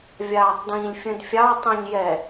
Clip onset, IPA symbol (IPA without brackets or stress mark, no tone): vʲ